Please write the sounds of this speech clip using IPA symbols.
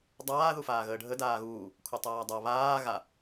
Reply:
dˤ aː ð u f aː ɣ əː ɖʱ ə d aː ɣ uː | kʷʰ ɤ tˤ aː dˤ a β aː ɣ a

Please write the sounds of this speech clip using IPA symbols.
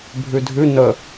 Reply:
bʱ ʉ dʱ ʉ n ə

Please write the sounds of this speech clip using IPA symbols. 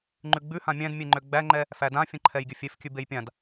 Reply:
ŋ͡ǃ ʉ ɡ͡b ʉ h ã mʲ æ̃ d mʲ e ŋ͡ǃ ø ɡ͡b æ ŋ͡ǃ ɛ | f æ d ã fʲ ə̃ ǃʰ ɛ j ɡʲ ə fʲ e f kʲ ʉ b e j pʲ ã d

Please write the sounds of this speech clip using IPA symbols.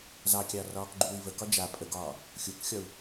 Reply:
z ɑ kʲ ɑ r ɒː k ɡ͡ǃ uː i̯ v ə k ɒ d͡ʒ a pʼ ə ɡ ɒː | xʲ u k xʲ ɒ u̯

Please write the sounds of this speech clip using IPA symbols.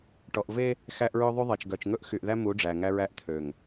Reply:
ʈ ɔ˨ ʔ v e˦ | x æ˦ ʔ ɹ ø˦ ðˤ y˦ ðˤ e˨ t͡ʃ ɡ œ˨ t͡ʃ ŋ ɵ˦ ʔ x y˨ ʔ ð æ˦ m u˨˦ ɖ͡ʐ æ˨ ŋ æ˦ ɹ æ˦ ʔ t̪ʰ ø˨ ŋ

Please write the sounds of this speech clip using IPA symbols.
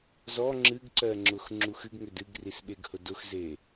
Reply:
z ɔ ŋ͡ǁ ɨ ɡ ǀ ɜ ŋ͡ǁ ʊ x ŋ͡ǁ u x ɨ ɡ ŋ ʏ d ɨ ɡ r i s ɓ e ɡ h ʊ d ʊ x z e

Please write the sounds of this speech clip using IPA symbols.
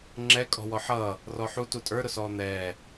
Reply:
ŋ͡ǁ ɛ kʼ ɔ̤ w ɔ ħ ʌː | r ɔ ħ u t u tʼ ə˞ ɾ ʊ s ɔː n̪ ɛː

